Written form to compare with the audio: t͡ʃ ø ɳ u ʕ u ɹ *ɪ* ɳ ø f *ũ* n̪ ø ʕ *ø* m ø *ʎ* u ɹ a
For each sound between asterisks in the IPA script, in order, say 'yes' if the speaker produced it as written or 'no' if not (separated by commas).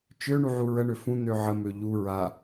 no, yes, no, yes